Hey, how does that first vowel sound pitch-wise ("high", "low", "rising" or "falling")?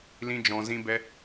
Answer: high